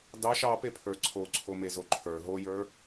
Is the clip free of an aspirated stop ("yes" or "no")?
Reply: no